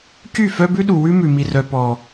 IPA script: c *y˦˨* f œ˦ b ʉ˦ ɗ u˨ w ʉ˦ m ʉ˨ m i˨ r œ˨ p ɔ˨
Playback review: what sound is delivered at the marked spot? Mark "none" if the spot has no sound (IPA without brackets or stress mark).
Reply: y˦˨